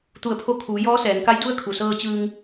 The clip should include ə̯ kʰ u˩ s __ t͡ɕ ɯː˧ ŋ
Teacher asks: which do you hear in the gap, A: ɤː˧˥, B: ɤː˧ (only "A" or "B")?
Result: B